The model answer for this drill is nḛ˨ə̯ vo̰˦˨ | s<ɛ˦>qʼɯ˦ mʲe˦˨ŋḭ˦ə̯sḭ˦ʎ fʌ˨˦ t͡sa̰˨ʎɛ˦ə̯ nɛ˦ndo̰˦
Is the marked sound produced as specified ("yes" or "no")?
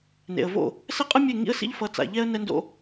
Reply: yes